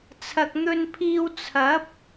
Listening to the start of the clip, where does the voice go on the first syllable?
low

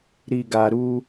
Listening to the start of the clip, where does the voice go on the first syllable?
low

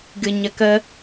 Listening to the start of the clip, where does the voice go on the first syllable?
low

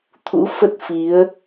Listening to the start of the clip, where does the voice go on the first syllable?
rising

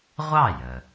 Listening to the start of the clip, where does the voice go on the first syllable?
falling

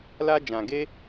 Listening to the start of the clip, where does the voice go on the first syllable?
high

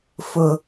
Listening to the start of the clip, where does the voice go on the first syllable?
low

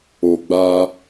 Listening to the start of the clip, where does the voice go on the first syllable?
low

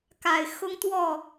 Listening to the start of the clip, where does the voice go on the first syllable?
low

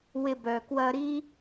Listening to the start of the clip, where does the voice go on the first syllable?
low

